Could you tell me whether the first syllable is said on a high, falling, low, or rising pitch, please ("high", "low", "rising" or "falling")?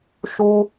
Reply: high